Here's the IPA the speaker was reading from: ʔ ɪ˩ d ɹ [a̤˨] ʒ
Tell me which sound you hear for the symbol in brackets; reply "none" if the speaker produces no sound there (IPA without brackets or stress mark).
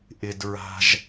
a̤˨